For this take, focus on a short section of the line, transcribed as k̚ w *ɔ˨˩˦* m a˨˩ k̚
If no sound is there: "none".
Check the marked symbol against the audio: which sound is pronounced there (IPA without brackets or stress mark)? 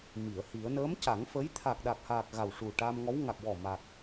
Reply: ɔ˨˩